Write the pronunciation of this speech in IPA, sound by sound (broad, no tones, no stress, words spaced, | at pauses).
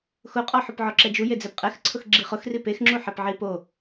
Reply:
xʊqʼɔ ħʊpʕɔǁɛd͡ʒu jed͡zɛpqʼɛxǀʰʊx ɡ͡ǁiχʊxri pexŋ͡ǁuħɛp ʕi po